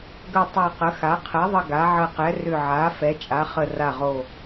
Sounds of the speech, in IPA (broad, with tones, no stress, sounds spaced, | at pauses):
ɡ ə˨˩ tˤ a˨˩ q ə˩˧ x a˩˧ qʰ ɛ˩˧ ðˤ ə˨˩ ɡ a˩˧ ʕ ə˨˩ q ɛ˩˧ r ʏ˨˩ ʕ a˩˧ f ɛ˩˧ t͡ʃʼ a˩˧ χ ə˨˩ r a˨˩ ʁ o˨˩